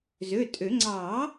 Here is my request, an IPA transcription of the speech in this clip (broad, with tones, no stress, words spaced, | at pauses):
zø˩˧˩tʼø˨˩˦ ŋ͡ǀɑː˨˩˦